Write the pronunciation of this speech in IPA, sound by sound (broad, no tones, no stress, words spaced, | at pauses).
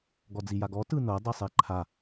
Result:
ɡɔd͡zijaɡɔ tɯnɤ dˤisˤeǃʰa